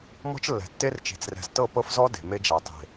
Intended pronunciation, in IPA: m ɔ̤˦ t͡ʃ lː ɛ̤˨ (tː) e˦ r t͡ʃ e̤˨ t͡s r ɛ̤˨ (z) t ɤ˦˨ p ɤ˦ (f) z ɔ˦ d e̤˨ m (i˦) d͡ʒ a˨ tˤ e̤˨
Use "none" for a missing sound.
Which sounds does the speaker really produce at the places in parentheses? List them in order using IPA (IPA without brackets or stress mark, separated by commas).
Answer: tː, z, f, e˦